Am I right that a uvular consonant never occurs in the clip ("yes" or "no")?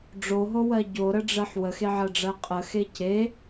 no